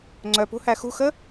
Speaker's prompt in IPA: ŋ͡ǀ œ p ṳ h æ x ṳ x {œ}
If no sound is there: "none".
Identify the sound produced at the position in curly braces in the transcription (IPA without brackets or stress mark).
ə